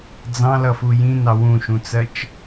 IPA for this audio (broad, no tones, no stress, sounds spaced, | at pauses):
d͡z ɑ̃ l ʌ f u j ĩ n ɑ w ũ ʃ ũ t͡s ɜ t͡ʃ